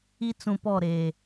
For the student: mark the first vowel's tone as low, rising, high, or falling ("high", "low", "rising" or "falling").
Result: high